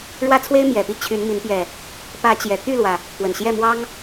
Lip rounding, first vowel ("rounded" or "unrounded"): unrounded